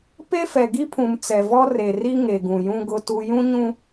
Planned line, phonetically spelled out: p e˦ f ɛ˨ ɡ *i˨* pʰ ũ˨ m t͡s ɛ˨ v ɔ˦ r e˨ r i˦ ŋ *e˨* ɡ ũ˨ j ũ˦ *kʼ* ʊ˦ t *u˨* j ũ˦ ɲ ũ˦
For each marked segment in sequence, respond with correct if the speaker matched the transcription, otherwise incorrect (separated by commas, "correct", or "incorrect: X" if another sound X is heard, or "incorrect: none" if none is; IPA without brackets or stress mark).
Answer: incorrect: i˦, correct, incorrect: ɡ, incorrect: u˦